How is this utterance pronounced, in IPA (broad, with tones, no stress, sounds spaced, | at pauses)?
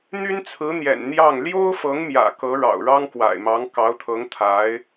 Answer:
n̪ y˥ n t͡sʰ ɹ̩˧˥ n̪ j ɛ̰˨˩ n n̪ j ɑ˥˩ ŋ l j o˥ ʊ̯ f ɤ˧˥ ŋ m j ä̰˨˩ k ɤ˧˥ ɻ ɑ̰˨˩ ʊ̯ ɻ ɑ˥ ŋ k w a̰˨˩ ɪ̯ m ɑ˧˥ ŋ k ɑ˧˥ ʊ̯ t̪ʰ ɤ˧˥ ŋ t̪ʰ a˧˥ ɪ̯